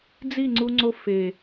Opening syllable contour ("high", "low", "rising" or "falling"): falling